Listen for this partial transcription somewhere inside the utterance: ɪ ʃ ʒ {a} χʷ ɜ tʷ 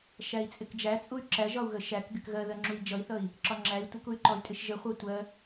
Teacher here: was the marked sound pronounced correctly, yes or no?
no